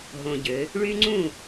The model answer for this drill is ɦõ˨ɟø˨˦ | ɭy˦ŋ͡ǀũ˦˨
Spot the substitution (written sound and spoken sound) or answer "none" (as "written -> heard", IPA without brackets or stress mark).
none